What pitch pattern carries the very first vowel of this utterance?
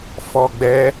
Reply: low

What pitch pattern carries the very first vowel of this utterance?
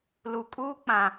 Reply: low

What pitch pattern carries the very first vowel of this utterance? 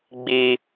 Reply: high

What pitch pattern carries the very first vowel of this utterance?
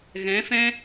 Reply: rising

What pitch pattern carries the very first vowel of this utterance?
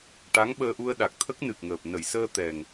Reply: rising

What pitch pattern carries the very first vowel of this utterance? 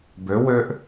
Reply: rising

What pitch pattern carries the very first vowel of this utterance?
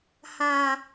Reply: high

